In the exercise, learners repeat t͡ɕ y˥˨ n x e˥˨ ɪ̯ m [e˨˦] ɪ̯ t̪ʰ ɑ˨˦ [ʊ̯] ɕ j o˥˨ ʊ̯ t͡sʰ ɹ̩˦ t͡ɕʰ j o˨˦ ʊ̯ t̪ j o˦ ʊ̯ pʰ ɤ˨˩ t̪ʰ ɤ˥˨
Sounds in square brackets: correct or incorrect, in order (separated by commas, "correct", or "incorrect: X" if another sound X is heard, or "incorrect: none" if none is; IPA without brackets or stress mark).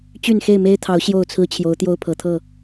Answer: incorrect: e˦, correct